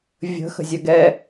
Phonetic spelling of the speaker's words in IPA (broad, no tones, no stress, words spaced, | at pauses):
vʲə̤ xə̤zʲœɡɛ